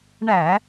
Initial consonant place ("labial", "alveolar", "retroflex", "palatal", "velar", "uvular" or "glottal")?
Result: retroflex